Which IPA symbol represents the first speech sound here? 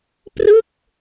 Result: p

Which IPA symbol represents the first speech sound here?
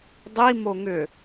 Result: dˤ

